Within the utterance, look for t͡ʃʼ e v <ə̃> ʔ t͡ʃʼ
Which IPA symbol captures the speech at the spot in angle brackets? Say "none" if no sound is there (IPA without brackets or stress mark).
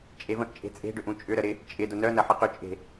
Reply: ə̃